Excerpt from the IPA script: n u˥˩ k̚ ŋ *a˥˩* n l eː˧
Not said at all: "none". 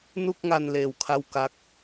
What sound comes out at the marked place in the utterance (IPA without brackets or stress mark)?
a˧